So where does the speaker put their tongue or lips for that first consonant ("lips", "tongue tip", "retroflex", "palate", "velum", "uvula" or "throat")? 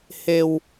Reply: throat